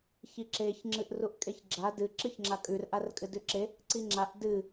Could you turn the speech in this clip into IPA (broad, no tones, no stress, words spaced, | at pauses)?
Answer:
çiǁeç ŋ͡ǁɨʔruʔkʼeçɡ͡ǁa dɨ ǁɨçŋ͡ǁakʼʉr ʔarkʼɨdʉǁe | ǀiŋ͡ǁaʔ dɨ